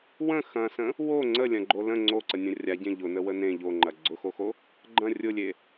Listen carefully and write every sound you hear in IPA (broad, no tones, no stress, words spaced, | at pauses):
wə̃ xɐ̃sə̃ | wo ŋ͡ǀəlʲɐ̃ɡ͡ǃo lə̃ ŋ͡ǀoǀənʲɐ̃ rʲaɟẽ ʎʊnəwə nẽ ʎoŋ͡ǃɐ ɡ͡ǀʊxoxo | ɡ͡ǃɐ̃ rʲʊlʲe